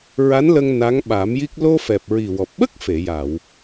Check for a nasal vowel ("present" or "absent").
absent